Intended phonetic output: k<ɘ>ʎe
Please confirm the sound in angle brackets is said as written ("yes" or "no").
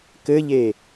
yes